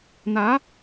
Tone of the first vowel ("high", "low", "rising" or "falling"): rising